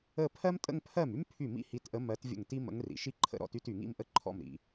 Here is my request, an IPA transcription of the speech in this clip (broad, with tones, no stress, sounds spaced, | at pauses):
ə˥˧ pʰ ɜ˥ m tʼ ə̰˥˧ ŋ pʰ ɜ˥˩ m y˥ m pʰ y˥˩ m ḭ˥ h i˧˥ t ʔ ə˧˥ m ɜ˧˥ t vʲ ə̰˥˩ ŋ t i˥ m ə̰˧˥ ŋ r ḭ˨ ʃ i˥ ǃʰ ə̰˥˧ ɾ ɔ̰˥˧ t y˥˧ t y˨ ŋ ḭ˥˧ m ʔ ə˥ ǃʰ ɔ̰˥˩ m ɾ ḭ˨